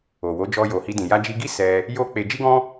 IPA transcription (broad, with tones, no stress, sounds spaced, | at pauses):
o˨ w o˨˦ d͡ʒ ɔ˧ j o˨ h i˧ d ĩ˨ j a˧ d͡ʒ i˧ ɡ i˦ s ɛ˧ | j o˦ k͡p e˧ d͡ʒ i˦ ɡ ɔ̃˦